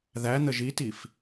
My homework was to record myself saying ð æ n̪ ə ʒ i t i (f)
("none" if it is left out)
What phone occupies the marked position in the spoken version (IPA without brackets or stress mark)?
f